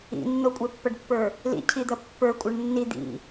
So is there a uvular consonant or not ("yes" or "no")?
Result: no